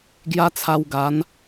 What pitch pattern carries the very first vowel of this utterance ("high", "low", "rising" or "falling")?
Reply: high